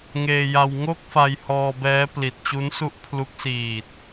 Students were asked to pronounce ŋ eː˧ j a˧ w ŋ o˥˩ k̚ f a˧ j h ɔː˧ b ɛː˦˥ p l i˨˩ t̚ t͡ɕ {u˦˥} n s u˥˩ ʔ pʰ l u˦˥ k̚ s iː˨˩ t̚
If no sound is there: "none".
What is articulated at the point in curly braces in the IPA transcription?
u˦˥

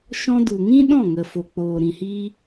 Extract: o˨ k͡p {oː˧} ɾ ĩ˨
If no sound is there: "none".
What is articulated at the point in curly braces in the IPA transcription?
oː˨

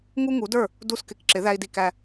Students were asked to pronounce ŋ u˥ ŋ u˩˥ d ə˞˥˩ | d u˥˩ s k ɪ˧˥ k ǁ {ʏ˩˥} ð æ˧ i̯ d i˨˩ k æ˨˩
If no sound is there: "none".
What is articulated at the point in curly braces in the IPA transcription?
ɪ˩˥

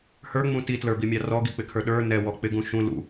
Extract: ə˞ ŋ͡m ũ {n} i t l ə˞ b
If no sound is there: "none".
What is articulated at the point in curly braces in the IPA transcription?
t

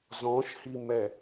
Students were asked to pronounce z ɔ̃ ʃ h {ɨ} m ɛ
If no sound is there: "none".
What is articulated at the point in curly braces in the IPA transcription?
i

